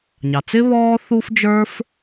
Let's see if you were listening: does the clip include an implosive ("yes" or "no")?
no